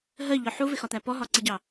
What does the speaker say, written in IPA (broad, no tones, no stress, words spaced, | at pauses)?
ɦɜʎɔ ħuvɪxɒt̪æ pɔɦɒǀiɟɑ